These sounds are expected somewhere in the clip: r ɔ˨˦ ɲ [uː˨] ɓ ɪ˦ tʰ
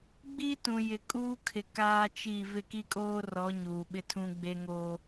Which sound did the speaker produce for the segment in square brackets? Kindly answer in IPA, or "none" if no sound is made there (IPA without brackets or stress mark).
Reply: uː˨